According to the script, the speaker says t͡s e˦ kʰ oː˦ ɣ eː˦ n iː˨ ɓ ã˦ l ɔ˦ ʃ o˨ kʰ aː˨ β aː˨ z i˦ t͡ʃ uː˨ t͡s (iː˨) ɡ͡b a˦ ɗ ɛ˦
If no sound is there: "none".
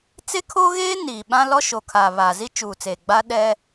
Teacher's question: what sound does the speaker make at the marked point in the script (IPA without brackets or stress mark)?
eː˨